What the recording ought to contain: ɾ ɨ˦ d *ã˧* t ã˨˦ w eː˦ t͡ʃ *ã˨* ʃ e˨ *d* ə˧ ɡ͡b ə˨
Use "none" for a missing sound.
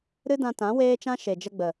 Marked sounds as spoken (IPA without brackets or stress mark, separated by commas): ã˧, ã˦, d͡ʒ